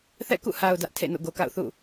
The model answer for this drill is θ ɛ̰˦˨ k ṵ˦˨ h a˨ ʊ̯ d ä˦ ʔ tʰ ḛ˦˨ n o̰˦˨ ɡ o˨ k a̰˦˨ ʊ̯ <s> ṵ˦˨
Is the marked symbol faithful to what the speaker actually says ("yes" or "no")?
no